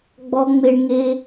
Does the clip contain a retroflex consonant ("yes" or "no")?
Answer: yes